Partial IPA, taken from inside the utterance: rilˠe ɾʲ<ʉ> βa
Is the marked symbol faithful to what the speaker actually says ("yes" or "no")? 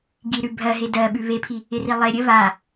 no